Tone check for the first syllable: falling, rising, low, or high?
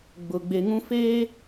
low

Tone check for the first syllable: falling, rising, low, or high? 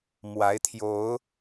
rising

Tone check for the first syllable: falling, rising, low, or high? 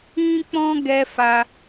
high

